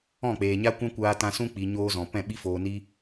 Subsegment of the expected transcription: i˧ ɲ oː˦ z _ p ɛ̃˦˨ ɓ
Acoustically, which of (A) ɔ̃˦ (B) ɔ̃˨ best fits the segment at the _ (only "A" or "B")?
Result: B